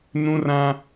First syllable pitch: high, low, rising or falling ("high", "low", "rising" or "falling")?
high